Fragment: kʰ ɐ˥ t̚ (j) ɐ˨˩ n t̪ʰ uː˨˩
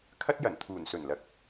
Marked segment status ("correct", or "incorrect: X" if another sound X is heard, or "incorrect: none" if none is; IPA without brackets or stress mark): correct